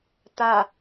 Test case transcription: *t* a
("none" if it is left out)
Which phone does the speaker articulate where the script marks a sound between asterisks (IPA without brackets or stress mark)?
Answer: t